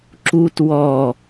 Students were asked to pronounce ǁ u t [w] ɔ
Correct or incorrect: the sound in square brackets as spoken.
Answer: correct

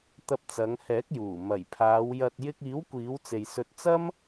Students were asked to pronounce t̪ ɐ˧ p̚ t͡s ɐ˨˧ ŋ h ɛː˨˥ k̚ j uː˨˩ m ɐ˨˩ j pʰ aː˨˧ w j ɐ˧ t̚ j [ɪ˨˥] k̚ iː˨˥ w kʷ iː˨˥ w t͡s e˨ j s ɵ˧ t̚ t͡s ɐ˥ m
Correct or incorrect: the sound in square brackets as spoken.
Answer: incorrect: ɪ˧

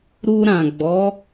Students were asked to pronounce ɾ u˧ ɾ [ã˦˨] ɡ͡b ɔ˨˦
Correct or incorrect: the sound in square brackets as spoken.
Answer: incorrect: ã˨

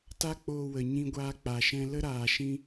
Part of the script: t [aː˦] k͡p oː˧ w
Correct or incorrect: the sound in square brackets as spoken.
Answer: incorrect: a˦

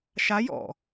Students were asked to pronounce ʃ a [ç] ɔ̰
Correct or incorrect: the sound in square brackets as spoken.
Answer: incorrect: j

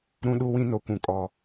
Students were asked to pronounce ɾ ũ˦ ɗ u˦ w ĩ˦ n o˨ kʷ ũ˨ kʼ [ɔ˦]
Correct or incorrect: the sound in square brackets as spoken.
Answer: incorrect: ɔ˨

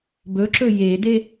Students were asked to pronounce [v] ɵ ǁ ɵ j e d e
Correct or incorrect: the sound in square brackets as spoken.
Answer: incorrect: b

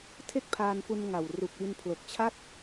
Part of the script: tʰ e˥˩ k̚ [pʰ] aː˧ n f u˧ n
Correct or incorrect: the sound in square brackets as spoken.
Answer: correct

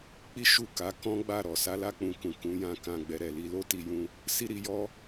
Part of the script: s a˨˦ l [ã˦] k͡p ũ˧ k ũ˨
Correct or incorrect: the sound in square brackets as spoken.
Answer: incorrect: a˦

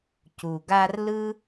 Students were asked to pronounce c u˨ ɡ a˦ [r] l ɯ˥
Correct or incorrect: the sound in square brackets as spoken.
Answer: correct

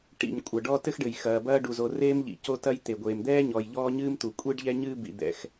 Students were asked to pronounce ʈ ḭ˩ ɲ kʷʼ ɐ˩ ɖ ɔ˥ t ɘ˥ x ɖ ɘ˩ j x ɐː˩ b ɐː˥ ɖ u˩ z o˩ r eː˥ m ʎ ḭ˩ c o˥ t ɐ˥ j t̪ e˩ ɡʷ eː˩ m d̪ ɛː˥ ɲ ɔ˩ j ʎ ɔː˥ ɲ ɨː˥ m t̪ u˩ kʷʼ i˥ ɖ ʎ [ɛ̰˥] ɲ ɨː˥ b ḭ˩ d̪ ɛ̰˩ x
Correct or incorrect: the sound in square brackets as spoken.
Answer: incorrect: ɛ˥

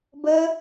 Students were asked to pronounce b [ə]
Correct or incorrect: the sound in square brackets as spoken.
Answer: correct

